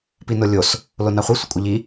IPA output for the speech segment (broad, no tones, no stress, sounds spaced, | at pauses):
p i n o lʲ o s | l o n ɑ χʷ i sʷ ə kʷʼ ə ʎ i